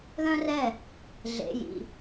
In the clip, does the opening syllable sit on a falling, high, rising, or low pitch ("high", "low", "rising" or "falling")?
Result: high